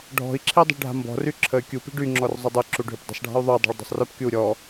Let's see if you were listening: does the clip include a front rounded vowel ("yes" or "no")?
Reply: yes